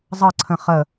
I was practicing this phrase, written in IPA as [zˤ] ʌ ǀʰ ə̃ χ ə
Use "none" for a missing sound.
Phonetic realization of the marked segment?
zˤ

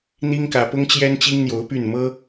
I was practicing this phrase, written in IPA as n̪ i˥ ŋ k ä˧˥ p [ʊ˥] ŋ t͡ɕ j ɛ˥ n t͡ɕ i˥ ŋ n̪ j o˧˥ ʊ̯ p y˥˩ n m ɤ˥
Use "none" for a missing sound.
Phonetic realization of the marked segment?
ʊ˥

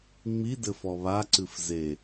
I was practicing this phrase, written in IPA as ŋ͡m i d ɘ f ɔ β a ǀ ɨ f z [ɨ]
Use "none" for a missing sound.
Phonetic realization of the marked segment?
e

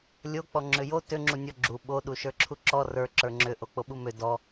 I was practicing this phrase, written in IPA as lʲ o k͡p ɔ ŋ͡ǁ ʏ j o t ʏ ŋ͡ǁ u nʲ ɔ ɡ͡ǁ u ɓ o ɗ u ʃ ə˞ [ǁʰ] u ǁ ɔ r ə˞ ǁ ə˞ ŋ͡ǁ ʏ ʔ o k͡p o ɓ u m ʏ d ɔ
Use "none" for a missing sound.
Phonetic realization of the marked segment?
ǁʰ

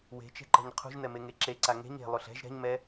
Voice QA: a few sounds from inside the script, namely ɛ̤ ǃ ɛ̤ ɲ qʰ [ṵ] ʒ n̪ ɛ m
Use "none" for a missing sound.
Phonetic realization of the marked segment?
ṳ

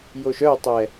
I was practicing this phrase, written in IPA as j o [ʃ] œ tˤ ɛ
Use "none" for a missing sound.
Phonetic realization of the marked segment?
ʃ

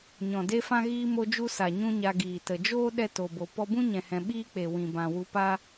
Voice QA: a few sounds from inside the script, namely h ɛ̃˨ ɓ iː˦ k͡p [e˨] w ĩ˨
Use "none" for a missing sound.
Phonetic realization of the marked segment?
e˨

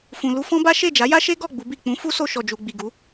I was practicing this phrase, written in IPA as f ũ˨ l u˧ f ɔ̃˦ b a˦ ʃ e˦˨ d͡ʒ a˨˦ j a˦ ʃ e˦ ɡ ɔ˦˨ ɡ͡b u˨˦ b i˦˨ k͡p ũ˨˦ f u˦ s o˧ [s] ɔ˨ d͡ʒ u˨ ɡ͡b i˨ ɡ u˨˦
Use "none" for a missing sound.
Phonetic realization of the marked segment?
ʃ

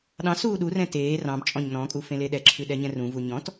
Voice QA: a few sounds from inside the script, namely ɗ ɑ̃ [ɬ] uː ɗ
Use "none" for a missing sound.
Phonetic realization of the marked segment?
s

